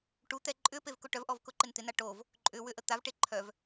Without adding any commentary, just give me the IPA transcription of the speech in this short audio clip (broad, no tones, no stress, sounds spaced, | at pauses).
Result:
ʈ u t̪ ɛ ǃʼ ʏ p e v k ʊ ʈ œ v ʔ ɔ v k ʊ ǃ ɪ n t̪ ɪ n a ʈ o v | ǃʼ ʏ w ʏ ʔ ə t̪ a v ʈ e ǃʰ œ v